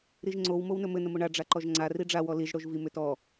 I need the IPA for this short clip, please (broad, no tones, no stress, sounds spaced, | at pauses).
ɾ i ʒ ŋ͡ǀ o w m o w n ɵ m ɘ n ə m o ɳ a ɖ͡ʐ a ǃ ɔ ʒ ŋ͡ǀ a r i ɖ͡ʐ a w ɔ l i ʒ ɽ o ʒ v i m ʏ t ɔ